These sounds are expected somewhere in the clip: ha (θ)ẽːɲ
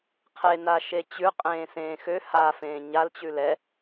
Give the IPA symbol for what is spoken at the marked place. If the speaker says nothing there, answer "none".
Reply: f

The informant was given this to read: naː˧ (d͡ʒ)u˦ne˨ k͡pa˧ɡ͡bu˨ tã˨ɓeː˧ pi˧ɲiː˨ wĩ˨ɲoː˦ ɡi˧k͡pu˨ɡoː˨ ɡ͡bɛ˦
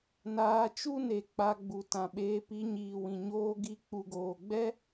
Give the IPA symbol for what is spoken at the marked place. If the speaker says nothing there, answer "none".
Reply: t͡ʃ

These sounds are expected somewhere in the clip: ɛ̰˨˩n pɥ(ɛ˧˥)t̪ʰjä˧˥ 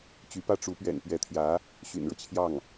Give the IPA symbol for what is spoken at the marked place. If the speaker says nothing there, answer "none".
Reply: ɛ˧˥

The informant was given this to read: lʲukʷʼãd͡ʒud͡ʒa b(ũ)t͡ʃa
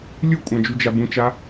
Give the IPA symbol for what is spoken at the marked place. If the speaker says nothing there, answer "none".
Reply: ũ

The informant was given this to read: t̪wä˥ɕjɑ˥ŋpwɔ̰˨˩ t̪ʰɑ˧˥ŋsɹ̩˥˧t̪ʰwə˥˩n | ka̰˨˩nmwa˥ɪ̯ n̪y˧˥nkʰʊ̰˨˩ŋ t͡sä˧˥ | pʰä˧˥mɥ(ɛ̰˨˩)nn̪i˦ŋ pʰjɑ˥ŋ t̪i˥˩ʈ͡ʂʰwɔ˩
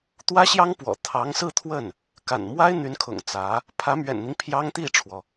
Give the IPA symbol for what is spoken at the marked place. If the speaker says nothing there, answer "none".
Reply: ɛ̰˨˩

